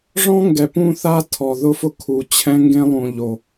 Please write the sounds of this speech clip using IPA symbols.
ʐ ɔ̃˦ ŋ ɡ ɛ˨ p ũ˦˨ θ a˦ tʰ ɔ˨ ð ʊ˦ f ʊ˦ kʰ u˨ t͡ɕʰ ɛ̃˦ ŋ ɡ ẽ˦ lˠ ũ˨ ʎ o˨

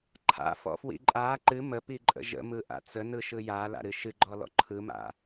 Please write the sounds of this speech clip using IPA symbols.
ǃʰ a̰ f ɔ̰ f w ḭ ǃʼ a ǃ ɨ m ə p i ǃʼ ə̰ ʒ ə̰ m ɯ ʔ a̰ t͡s ə n ɯ ʃ ɯ j a l a̰ ɾ ɨ ʃ ɨ ɡ͡ǃ ɔ l ɔ̰ ǃʰ ɯ m a̰

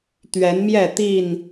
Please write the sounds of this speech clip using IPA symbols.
t̪ ɥ ɛ˨˦ n m j ɛ˥˨ t̪ i˥˨ n

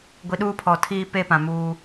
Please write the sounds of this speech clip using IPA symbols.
ɡʷ i˨ ɗ uː˦ pʰ ɔ˨ tʰ iː˦ p e˦ p ã˨ m uː˦

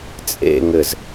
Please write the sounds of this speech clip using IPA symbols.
t͡sʼ ḛ ŋ ɘ z

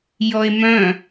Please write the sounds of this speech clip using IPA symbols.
j ɔ e̯ m œ̃

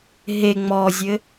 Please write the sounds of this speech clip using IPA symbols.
ɦ e ŋ͡m ɔ zʲ ɘ

